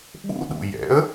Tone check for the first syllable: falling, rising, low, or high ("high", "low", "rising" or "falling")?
high